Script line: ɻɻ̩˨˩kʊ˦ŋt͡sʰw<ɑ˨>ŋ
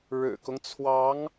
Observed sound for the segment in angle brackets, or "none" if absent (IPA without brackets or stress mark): ɑ˧˥